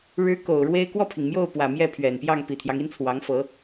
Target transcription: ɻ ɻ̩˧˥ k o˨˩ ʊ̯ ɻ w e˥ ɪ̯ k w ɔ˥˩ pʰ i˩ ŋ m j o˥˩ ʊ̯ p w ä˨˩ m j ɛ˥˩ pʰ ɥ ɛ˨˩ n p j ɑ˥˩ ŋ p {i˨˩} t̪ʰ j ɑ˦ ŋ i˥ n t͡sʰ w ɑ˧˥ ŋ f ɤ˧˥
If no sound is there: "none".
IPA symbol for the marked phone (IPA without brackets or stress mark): i˨˩